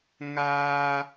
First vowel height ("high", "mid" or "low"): low